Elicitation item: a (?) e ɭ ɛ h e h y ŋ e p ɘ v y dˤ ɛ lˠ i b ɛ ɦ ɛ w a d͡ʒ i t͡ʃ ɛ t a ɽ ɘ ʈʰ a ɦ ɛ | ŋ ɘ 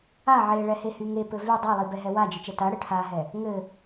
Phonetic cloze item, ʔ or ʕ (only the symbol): ʕ